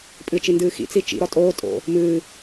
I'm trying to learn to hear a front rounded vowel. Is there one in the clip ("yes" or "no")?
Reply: no